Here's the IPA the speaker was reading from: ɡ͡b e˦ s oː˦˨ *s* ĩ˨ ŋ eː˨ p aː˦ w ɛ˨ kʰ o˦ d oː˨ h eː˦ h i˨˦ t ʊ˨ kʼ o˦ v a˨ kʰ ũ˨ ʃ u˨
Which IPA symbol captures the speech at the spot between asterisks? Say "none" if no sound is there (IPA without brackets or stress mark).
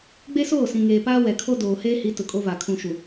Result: s